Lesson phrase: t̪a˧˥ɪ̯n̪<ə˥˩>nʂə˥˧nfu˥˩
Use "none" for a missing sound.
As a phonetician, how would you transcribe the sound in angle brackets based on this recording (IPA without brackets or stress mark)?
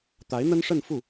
ə˥